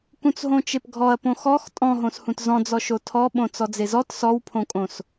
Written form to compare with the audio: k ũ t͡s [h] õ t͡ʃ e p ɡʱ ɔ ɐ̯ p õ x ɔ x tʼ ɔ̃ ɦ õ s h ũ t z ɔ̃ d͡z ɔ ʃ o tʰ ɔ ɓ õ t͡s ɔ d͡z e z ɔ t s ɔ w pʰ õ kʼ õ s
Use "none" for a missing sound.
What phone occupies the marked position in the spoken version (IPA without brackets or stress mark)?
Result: ɦ